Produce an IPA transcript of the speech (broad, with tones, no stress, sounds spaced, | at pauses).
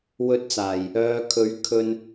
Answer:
w ɵ˨˥ t̚ t͡s aː˨˩ j | œː˨˧ kʰ ɵ˨˥ ɥ kʰ ɵ˧ n